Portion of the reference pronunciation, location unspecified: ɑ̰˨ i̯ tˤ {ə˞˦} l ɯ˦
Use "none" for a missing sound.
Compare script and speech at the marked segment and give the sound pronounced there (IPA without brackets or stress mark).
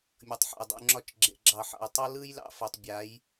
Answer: ʌ˦